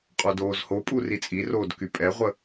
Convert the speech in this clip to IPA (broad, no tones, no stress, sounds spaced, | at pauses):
qʼ o d oː z h o pʼ u r i t͡sʼ i r oː d k y pʼ ɛ ʁʷ ə